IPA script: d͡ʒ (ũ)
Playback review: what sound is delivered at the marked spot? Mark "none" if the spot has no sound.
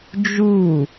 u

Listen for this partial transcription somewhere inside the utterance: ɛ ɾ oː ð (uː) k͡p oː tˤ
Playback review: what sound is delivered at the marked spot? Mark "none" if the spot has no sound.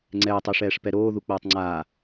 u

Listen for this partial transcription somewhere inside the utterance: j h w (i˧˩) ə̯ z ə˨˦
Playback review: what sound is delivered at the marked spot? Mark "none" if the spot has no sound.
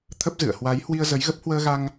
i˧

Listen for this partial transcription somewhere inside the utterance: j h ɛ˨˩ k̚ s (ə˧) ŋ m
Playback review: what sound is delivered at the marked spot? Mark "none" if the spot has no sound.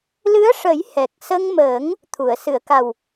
ə˧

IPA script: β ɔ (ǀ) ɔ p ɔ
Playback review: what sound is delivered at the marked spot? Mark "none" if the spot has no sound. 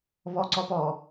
ǀ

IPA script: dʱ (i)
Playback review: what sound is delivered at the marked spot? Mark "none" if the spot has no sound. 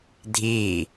i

